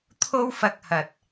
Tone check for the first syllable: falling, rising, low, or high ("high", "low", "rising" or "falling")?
high